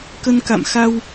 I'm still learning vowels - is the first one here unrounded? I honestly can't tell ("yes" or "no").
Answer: yes